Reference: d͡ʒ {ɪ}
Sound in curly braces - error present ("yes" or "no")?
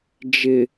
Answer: no